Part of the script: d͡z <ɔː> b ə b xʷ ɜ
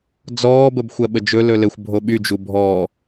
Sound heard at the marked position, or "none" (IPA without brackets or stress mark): ɔː